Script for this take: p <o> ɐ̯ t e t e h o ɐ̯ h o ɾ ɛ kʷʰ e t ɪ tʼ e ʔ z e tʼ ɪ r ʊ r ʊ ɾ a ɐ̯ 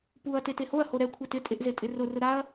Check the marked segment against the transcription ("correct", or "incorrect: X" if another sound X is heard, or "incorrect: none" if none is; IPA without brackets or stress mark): incorrect: u